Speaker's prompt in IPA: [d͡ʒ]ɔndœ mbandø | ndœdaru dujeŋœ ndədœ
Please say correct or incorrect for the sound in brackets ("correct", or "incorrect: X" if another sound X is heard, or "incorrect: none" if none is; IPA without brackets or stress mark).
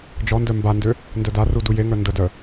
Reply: correct